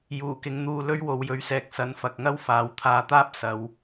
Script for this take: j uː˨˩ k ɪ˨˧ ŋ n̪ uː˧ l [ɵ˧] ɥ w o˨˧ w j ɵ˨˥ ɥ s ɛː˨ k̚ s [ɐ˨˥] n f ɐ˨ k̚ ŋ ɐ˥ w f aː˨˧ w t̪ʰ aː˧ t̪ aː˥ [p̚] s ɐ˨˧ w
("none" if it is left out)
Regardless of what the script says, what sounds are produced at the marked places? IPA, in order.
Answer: ɵ˥, ɐ˨˥, p̚

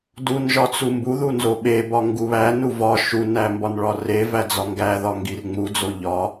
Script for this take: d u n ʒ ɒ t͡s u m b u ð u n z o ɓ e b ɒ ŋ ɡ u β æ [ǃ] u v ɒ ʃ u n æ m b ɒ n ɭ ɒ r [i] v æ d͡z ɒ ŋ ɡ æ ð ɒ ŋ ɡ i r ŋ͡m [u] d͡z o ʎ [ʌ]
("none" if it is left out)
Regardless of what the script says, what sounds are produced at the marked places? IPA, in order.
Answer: n, e, u, ɒ

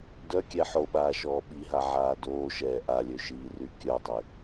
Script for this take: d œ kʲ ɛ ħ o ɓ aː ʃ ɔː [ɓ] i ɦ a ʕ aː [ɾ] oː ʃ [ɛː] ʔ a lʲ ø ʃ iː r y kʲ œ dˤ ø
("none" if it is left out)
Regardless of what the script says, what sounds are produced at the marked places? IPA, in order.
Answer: ɓ, d, ɛː

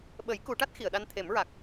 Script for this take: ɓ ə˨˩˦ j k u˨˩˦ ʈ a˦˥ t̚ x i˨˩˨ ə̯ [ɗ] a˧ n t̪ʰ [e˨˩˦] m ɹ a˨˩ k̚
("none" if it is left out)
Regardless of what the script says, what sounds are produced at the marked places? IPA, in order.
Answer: ɗ, e˨˩˦

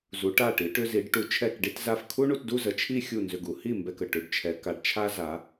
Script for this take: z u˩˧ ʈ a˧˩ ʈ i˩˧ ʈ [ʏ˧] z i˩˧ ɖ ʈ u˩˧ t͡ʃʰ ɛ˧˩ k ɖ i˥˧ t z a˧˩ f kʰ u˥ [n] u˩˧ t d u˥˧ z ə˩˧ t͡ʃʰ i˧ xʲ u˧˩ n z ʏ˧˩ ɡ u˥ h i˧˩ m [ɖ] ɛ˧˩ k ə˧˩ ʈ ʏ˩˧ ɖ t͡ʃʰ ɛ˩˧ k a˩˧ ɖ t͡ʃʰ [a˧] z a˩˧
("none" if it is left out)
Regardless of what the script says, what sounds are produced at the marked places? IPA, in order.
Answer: ʏ˧, ɳ, b, a˥

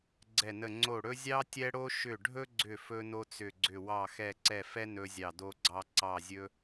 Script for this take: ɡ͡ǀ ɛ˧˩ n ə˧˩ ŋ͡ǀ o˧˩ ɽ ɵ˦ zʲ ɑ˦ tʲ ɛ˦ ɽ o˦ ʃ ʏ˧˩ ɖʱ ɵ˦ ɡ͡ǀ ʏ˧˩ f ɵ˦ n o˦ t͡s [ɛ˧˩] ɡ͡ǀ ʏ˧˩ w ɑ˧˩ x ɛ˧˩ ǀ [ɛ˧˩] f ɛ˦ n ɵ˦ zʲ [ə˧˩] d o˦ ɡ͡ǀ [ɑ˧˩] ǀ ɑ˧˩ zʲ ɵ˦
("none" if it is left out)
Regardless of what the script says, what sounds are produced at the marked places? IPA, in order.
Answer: ʏ˧˩, ɛ˧˩, ɑ˧˩, ɑ˦

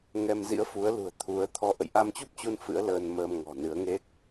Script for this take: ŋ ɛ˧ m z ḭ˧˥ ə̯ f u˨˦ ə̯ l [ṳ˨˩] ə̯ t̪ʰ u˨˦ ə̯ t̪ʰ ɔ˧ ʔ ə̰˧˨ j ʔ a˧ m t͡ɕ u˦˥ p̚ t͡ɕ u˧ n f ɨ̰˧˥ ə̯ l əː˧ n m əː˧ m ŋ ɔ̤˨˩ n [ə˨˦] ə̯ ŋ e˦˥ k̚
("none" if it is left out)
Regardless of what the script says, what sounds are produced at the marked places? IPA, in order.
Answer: ṳ˨˩, ɨ˨˦

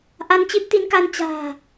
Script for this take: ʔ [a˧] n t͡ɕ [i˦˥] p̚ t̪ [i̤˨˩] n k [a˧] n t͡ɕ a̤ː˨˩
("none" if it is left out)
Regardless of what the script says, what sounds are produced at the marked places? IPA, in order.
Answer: a˧, i˦˥, i˨˦, a˧

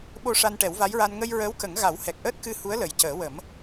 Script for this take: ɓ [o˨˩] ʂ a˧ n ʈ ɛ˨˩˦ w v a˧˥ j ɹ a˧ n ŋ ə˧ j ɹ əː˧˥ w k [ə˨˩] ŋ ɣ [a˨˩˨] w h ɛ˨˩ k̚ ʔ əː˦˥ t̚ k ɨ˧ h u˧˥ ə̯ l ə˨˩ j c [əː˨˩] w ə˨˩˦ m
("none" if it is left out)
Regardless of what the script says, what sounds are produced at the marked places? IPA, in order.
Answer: o˧, ə˨˩˦, a˨˩˦, əː˨˩˦

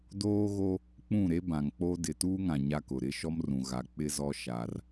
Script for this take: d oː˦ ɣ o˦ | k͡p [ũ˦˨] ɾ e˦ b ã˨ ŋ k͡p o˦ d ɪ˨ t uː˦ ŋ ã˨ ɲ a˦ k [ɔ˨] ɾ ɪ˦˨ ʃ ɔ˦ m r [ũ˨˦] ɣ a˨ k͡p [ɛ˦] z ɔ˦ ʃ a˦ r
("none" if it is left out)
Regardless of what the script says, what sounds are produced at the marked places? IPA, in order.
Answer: ũ˦˨, ʊ˨, ũ˨, ɪ˦

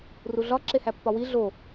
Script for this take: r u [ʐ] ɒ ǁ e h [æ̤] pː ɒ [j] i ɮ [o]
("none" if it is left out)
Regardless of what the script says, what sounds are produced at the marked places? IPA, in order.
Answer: ɮ, æ, w, o

